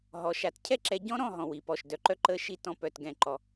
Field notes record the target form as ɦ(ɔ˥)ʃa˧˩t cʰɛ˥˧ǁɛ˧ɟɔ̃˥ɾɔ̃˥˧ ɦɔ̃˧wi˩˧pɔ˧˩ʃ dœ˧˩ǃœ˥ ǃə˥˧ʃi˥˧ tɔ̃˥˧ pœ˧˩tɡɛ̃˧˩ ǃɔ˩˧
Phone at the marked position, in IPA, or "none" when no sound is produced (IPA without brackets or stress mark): ɔ˩˧